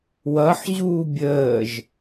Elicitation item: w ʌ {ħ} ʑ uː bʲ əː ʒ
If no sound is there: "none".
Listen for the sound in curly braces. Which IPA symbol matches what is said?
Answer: ħ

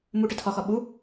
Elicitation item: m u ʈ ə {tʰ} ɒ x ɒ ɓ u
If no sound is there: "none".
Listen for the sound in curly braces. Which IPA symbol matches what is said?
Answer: tʰ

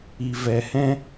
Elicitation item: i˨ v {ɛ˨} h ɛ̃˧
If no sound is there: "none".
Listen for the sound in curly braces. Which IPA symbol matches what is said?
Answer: ɛ˨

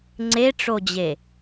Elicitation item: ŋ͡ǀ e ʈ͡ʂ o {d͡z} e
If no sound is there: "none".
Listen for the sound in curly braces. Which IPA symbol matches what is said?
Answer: d͡ʑ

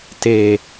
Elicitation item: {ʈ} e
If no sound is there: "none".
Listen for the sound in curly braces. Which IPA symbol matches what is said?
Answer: t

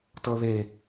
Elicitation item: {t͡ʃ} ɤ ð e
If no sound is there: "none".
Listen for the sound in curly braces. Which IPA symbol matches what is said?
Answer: t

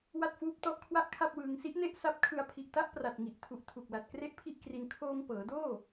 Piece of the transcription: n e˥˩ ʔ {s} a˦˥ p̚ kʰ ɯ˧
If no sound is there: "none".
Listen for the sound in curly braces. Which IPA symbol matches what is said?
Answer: s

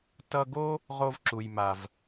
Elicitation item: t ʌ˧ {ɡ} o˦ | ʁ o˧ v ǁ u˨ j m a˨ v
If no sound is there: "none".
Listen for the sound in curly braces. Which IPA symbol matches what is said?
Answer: ɡ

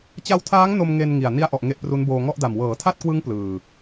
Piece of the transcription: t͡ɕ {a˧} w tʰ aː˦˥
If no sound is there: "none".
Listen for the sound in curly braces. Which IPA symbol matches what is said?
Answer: a˧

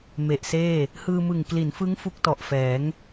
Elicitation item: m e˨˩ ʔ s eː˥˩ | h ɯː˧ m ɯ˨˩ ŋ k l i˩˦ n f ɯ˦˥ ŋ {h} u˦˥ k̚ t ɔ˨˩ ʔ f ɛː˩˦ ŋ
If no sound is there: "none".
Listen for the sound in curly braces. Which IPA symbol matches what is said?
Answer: f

